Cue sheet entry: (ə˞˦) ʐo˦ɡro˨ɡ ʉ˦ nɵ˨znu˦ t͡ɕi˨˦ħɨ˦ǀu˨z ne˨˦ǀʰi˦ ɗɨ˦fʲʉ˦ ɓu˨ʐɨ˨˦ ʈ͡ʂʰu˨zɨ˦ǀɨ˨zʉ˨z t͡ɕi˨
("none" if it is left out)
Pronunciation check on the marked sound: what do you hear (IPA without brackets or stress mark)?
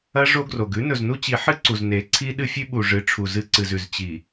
ɐ˦